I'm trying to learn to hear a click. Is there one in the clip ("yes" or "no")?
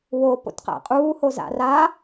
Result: no